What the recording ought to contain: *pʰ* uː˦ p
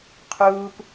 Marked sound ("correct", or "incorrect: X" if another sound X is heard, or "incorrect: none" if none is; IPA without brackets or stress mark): incorrect: qʰ